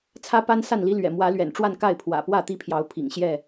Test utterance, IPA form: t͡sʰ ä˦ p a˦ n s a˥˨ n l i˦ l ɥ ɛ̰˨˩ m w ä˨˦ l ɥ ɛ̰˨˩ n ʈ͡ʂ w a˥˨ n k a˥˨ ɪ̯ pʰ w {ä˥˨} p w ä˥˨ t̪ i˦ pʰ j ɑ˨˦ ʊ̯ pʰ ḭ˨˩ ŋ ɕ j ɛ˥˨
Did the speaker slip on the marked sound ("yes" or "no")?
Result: yes